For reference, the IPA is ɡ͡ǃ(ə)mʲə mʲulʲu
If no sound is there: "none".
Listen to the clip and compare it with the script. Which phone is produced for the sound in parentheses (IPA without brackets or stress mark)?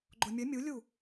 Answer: ʊ